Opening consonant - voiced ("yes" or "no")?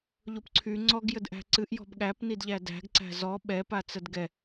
yes